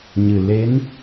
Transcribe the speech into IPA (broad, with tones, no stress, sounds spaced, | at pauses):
ɲ ɨ˨˩ l e˧˥ n